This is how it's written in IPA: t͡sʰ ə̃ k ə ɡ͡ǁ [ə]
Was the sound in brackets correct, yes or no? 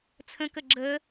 yes